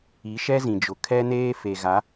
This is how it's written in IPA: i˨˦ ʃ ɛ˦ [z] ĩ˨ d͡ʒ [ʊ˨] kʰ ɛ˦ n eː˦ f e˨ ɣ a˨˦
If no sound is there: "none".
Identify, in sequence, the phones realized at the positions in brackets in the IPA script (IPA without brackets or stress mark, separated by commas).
z, ʊ˨